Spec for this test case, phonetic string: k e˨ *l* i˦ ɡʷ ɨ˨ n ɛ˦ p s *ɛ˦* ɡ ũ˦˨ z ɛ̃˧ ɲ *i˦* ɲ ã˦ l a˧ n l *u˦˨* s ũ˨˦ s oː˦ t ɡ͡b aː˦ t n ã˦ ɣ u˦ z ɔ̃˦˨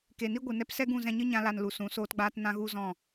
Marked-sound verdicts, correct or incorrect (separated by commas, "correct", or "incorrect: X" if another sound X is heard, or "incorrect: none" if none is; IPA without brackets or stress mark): incorrect: n, correct, incorrect: ɨ˦, incorrect: u˨